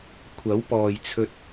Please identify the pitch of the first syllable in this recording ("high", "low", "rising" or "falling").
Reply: rising